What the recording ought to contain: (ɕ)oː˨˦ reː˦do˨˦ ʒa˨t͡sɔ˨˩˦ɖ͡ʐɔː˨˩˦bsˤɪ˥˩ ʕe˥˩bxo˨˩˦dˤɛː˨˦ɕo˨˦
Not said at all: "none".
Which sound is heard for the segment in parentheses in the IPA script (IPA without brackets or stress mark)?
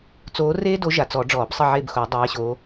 t͡s